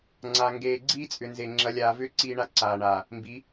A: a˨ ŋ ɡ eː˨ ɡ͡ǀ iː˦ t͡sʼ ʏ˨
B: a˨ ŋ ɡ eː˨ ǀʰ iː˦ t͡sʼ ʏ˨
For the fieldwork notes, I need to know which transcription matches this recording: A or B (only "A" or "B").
A